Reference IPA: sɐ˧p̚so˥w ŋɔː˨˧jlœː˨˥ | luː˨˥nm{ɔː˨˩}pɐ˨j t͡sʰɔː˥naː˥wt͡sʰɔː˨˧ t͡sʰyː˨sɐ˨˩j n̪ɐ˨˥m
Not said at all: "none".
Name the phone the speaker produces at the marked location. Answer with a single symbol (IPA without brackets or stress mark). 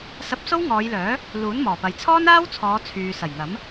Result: ɔː˨˩